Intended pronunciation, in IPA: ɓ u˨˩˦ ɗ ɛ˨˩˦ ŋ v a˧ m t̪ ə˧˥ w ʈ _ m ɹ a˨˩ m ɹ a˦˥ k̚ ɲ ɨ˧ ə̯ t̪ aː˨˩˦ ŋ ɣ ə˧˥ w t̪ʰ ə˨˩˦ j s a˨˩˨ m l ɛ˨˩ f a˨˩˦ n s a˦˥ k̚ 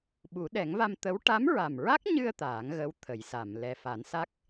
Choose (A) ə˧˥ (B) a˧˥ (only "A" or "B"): B